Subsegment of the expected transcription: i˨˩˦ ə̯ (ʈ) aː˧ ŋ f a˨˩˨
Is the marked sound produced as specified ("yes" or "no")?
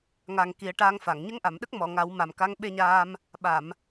yes